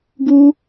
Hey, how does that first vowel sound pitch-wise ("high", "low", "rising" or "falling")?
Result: high